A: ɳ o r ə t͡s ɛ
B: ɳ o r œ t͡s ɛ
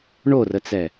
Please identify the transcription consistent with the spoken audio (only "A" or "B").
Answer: A